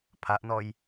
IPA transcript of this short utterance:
pʰ a ʔ n ɔ j

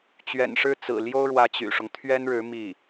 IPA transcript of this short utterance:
t͡ɕ ɥ ɛ̰˨˩ n ʂ ɻ̩˥˩ t͡s ɹ̩˨˩ l j o˥ ʊ̯ ɻ w ä˧˥ t͡ɕ y̰˨˩ ʂ ʊ˦ ŋ t̪ʰ ɥ ɛ˥ n ɻ ɻ̩˧˥ m i˥˩

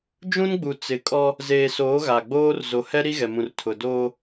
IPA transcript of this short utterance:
d͡ʒ ũ˦ n ɡ͡b u˨ t͡s ɪ˨˦ kʼ ɔ˦ | z eː˨ s oː˨˦ ɣ a˨ ɡ͡b oː˦ r z o˨ h ɛ˦ ɾ i˦ ɣ ɛ˨ m ũ˨ r tʰ ʊ˨ d oː˦

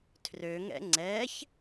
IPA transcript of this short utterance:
tʰ r ø ŋ ɛ̰ ŋ͡ǀ ɛ ç

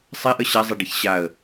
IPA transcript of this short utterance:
sˤ e ʔ ə ɕ a zˤ e ɖ i ç ɕ a ə̯

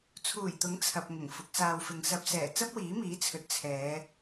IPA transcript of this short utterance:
t͡sʰ uː˨˩ j t̪ ʊ˨˥ ŋ t͡sʰ ɐ˨ p̚ ŋ ʊ˨˩ ŋ f ʊ˨˥ k̚ s aː˧ w f ɪ˨ ŋ s ɐ˧ p̚ s ɛː˨˩ t͡s ɐ˥ p̚ w iː˨˥ m iː˨˥ t͡sʰ ɵ˨ t̚ t͡sʰ ɛː˨˧

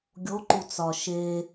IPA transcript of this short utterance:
ɡʲ o ǃ u t͡s ɒ ʃ e

